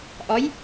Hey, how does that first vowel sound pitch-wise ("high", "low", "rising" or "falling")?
rising